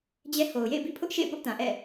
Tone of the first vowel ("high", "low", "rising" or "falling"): high